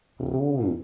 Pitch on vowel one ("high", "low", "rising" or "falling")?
falling